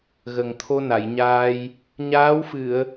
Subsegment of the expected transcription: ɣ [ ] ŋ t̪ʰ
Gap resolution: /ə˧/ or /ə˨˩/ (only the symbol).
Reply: ə˨˩